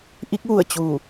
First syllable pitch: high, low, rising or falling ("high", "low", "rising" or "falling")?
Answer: rising